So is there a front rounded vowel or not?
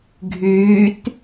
yes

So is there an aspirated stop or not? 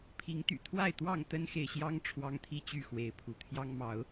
yes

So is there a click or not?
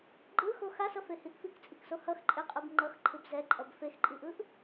yes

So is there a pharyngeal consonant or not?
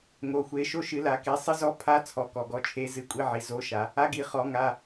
yes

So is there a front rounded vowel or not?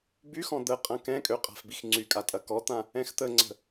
yes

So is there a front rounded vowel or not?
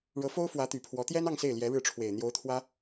yes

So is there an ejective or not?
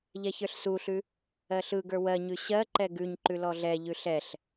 no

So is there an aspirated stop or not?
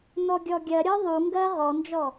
no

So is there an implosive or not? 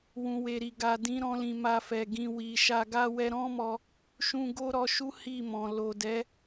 no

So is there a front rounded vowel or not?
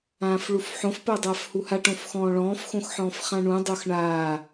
no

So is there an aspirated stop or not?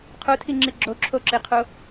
yes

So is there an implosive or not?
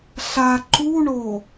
no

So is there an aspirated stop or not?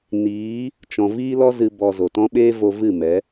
no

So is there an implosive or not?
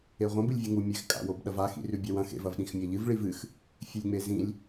yes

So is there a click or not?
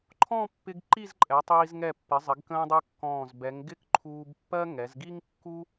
yes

